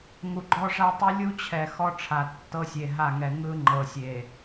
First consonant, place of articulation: velar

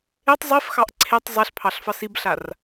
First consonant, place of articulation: alveolar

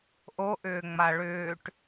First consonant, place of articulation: glottal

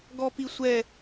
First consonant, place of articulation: velar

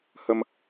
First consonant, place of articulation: glottal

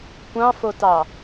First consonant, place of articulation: velar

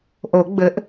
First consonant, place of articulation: glottal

